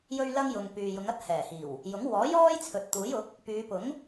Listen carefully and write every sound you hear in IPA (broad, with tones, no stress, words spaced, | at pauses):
jɵ˧ɥlɐ˧ŋ jʊ˨ŋpyː˨jʊ˨˧ŋɐ˥t̚ hɛː˨˩hiː˨˩w | jʊ˨˥ŋ wɔː˨˥jɔː˥j t͡sʰɵ˨t̚ t̪uː˨˥jʊ˨˥k̚ | pyː˨˧pʊ˨˥ŋ